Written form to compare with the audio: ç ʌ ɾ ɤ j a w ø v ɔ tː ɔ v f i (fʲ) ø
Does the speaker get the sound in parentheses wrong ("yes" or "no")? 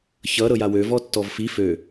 yes